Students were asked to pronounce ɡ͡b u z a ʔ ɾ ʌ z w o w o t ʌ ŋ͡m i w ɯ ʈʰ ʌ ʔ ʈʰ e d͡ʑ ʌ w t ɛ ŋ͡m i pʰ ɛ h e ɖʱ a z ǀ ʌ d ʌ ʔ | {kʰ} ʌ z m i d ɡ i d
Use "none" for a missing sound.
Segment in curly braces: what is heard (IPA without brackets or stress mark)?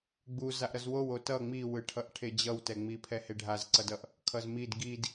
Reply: kʰ